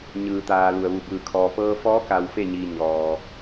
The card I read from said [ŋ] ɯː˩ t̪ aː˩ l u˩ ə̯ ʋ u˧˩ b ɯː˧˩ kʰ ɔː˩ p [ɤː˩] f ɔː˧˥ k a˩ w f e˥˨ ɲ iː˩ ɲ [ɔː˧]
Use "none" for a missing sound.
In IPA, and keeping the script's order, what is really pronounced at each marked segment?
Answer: ɲ, ɤː˧, ɔː˩

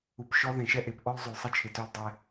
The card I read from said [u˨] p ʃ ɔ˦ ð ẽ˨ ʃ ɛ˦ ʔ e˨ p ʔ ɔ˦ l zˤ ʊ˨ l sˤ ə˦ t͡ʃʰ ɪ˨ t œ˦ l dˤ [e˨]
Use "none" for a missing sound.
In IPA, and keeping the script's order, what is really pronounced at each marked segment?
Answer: u˨, e˦

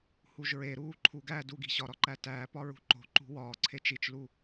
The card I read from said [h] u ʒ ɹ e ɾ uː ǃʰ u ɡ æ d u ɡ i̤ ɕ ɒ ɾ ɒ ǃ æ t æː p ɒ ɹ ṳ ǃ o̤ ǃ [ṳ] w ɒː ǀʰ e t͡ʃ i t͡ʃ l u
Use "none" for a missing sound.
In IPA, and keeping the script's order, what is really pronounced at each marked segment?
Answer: h, ṳ

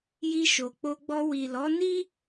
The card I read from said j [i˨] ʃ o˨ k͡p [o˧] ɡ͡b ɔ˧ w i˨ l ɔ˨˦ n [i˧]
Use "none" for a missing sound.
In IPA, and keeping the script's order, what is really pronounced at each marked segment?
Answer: i˧, o˧, i˦

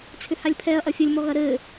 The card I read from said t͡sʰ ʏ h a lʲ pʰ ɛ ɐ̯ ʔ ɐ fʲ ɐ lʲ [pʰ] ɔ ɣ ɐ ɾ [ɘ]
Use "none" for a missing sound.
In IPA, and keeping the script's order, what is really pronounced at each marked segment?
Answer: m, ɘ

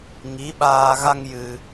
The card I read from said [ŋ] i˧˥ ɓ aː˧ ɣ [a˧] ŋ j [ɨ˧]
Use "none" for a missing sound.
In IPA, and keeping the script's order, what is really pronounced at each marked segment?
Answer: ŋ, a˧, ɨ˧

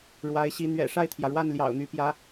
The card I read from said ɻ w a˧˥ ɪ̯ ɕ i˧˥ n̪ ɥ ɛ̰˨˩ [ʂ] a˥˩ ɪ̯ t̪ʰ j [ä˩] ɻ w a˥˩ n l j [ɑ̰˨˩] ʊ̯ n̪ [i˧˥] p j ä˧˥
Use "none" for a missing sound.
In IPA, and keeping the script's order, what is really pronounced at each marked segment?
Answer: ʂ, ä˩, ɑ̰˨˩, y˧˥

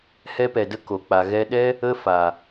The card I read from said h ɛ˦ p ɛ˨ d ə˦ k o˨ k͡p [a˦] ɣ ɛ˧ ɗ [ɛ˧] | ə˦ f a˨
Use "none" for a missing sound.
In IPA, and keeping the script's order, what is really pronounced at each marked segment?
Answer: a˨, ɛ˦

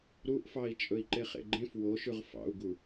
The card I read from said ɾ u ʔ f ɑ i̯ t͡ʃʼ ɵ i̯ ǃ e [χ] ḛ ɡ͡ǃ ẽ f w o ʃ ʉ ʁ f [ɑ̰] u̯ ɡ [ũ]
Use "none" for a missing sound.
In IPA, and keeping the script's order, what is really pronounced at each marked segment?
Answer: χ, ɑ̰, u

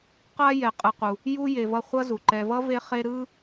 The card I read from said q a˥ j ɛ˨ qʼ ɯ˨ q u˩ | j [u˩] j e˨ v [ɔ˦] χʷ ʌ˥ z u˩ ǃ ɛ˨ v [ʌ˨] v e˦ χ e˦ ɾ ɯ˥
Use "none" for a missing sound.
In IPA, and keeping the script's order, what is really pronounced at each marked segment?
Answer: u˥, ʌ˦, ʌ˥

